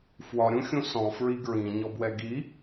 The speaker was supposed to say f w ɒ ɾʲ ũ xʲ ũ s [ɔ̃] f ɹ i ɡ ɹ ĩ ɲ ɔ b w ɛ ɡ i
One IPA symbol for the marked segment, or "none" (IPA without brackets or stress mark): ɔ̃